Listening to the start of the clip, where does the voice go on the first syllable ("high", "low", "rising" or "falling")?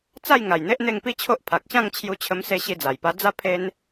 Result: falling